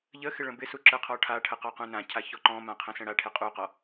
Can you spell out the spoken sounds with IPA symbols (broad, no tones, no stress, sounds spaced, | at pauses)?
ʎ ə x ɪ ɭ ə̃ b ɪ s u ǁ ə qʰ ɔ ʈʰ a ʈʰ ə q ɔ q ũ n ã cʰ a ç ɔ ǃ ɔ̃ m ã qʰ ə̃ s ə̃ ɽ a ʈʰ ɪ qʼ u q ɔ